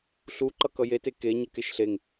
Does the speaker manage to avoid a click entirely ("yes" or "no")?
no